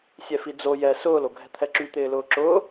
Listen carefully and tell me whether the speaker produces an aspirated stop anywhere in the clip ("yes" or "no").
yes